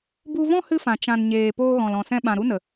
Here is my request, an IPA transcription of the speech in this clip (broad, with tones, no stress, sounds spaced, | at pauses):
b u˧ v ɔ̃˦ h ɨ˧ f ã˨ t͡ʃ ã˨ n ɲ eː˨ p oː˧ ɣ ɔ̃˨ l ɔ̃˨ s ɛ̃˧ ɓ ã˨ ɾ u˦ n ə˨